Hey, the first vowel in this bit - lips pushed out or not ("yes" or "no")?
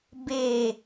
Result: no